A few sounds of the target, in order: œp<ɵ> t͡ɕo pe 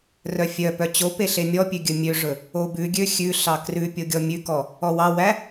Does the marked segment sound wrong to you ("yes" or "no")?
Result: yes